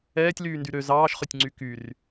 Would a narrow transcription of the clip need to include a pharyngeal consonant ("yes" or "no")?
no